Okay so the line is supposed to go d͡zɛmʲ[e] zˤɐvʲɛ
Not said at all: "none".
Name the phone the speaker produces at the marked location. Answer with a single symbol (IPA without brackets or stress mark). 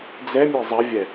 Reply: e